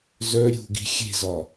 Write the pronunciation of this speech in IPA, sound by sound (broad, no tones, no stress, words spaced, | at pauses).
zœ ɾʲṳɡi̤ xʲe̤zɒ